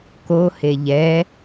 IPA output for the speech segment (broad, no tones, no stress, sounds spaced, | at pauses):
k o h e ʎ ɛ